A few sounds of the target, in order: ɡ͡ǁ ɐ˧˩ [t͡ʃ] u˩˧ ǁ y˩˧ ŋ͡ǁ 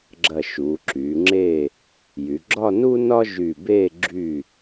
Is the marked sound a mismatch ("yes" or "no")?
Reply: yes